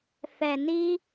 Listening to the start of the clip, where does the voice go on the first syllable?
low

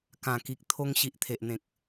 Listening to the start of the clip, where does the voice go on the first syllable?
low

